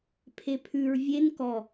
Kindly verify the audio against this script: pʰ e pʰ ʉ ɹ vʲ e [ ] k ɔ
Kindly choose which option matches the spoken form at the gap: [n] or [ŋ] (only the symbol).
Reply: n